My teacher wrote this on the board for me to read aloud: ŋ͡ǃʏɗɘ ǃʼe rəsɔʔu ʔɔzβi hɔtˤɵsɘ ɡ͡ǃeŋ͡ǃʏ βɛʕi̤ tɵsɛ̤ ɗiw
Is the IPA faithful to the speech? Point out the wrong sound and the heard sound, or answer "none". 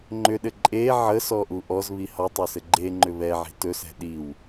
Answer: r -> ʕ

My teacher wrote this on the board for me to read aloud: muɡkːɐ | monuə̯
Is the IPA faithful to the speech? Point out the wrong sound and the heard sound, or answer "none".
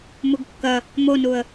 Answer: none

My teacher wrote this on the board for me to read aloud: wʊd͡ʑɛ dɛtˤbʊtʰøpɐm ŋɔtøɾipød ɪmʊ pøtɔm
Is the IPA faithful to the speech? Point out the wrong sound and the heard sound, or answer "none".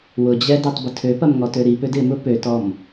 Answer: none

